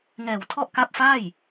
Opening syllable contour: low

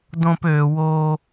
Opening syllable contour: low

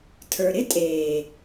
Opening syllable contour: low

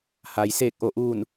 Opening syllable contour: low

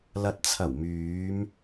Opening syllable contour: low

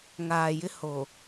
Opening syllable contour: low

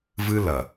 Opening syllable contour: high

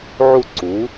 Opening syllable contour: falling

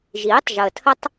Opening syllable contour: rising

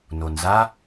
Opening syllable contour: low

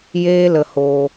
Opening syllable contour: high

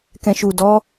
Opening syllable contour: low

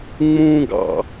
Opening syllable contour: high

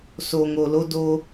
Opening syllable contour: low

